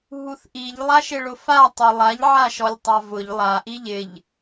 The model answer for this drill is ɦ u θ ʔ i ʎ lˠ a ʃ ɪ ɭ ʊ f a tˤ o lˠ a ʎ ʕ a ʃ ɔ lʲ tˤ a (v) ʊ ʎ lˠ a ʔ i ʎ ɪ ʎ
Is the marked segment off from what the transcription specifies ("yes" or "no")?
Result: no